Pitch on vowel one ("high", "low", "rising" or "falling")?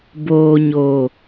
low